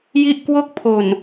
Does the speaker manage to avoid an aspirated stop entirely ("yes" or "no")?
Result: no